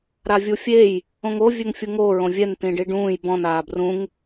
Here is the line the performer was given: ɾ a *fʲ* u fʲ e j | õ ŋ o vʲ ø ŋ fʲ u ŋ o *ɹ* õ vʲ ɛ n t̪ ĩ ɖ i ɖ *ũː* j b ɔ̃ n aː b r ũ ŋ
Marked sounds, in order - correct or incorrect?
incorrect, correct, correct

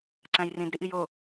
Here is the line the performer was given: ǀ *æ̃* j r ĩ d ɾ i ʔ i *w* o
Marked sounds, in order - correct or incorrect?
correct, incorrect

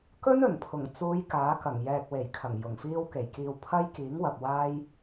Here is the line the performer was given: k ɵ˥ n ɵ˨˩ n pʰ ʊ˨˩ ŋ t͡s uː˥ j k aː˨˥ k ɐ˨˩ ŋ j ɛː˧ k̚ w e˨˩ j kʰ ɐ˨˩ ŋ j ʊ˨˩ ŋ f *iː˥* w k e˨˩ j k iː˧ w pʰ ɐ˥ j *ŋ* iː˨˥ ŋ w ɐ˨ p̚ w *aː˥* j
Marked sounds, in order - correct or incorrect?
correct, incorrect, correct

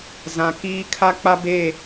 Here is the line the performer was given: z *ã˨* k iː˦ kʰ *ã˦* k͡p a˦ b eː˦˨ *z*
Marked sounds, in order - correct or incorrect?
correct, incorrect, incorrect

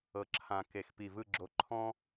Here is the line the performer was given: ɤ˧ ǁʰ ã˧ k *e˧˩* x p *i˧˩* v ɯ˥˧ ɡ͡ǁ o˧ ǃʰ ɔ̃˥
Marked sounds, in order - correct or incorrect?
correct, correct

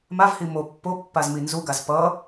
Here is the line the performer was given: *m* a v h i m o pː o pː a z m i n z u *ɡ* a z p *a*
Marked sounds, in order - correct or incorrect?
correct, correct, incorrect

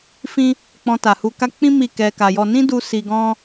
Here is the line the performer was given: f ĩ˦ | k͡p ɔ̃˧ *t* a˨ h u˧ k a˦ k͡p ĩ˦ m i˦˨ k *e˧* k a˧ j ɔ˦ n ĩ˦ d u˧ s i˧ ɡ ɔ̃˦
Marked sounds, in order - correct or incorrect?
correct, incorrect

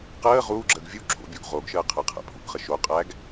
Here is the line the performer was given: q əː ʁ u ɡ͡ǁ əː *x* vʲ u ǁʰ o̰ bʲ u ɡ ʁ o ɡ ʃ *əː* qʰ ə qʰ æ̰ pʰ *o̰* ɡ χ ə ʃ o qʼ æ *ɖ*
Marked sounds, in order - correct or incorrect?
incorrect, correct, incorrect, incorrect

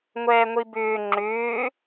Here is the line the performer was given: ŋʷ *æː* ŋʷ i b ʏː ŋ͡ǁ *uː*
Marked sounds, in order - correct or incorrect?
incorrect, incorrect

